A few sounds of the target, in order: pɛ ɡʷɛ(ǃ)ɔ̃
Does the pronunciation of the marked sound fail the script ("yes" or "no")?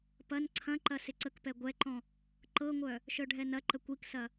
no